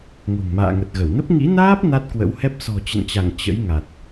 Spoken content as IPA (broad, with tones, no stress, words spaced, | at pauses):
ŋo̤˨˩ŋma̰ː˧˨ŋə˨˩t̚ ɣə˧˩wnə˦˥p̚ ŋḭ˧˥naː˦˥p̚ na˦˥t̚kwə̰˧˥whɛ˦˥p̚ sɔ̤˨˩t͡ɕə̰˧˨nt͡ɕa˧˩ŋ t͡ɕə̰˧˥jŋa˨˩t̚